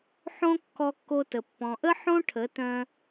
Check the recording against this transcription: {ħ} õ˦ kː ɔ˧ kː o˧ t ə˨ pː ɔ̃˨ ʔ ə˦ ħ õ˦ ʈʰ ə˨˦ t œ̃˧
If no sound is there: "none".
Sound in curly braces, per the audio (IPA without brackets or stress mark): ħ